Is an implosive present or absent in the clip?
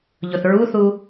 absent